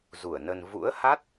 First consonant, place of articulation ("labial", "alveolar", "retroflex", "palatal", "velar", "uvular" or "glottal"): alveolar